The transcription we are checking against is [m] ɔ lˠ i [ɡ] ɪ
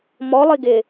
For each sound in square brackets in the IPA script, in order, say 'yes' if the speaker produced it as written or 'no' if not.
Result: yes, yes

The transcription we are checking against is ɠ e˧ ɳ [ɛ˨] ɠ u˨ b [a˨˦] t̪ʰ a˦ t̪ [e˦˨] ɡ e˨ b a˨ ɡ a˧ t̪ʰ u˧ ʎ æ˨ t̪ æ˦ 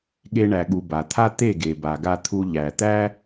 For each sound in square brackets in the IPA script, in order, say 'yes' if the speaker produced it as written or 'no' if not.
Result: no, no, yes

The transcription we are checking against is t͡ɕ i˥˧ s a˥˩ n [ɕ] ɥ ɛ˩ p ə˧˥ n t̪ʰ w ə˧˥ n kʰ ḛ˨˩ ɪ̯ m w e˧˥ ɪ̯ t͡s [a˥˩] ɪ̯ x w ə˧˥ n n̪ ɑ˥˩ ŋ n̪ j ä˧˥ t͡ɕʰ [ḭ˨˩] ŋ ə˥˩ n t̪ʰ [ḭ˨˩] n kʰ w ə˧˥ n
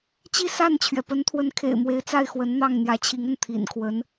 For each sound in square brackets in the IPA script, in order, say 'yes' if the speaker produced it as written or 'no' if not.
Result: no, yes, no, yes

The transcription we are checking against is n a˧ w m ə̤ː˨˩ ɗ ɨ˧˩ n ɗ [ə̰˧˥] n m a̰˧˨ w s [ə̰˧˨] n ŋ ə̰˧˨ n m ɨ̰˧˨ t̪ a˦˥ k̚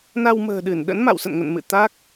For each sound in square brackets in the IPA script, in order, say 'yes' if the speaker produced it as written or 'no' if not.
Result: yes, yes

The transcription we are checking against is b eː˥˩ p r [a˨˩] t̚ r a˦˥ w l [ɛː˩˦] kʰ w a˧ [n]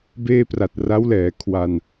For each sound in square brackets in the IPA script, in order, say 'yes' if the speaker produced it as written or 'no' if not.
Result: yes, yes, yes

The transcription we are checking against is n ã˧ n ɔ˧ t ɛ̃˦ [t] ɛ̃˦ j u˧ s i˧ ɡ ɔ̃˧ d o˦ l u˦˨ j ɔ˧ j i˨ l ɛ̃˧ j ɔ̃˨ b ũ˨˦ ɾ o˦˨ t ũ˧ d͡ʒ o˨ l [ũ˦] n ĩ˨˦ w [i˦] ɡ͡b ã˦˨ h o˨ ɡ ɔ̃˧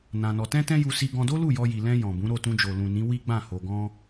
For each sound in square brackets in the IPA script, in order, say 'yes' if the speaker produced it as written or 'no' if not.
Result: yes, no, yes

